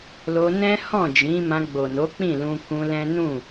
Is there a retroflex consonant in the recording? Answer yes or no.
no